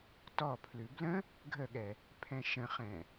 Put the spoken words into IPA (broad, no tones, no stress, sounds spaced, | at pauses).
t ɔ pʰ l ʉ b l ə̃ | ɡʱ ə ɠ ɛ | pʰ ɛ̃ ʃ ə̃ χ ɛ̃